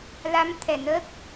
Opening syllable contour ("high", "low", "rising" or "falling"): rising